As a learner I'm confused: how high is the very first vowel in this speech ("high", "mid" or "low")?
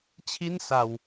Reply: high